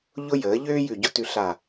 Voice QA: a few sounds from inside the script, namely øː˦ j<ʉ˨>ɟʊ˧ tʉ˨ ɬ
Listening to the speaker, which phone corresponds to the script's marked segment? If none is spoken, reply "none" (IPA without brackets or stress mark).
ʉ˨